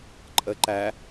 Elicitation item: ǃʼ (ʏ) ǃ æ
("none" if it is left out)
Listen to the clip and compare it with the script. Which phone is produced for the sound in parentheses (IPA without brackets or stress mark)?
ə